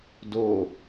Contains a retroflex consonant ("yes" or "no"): no